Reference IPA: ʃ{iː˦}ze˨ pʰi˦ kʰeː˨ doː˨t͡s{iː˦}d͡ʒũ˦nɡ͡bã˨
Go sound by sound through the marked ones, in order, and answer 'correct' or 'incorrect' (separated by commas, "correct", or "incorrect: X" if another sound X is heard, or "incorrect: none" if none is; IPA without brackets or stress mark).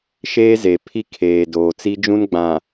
incorrect: eː˦, incorrect: i˦